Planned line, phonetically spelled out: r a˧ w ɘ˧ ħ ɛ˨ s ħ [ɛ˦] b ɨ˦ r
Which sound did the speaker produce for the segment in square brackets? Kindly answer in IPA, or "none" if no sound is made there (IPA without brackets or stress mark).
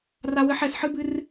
ɨ˦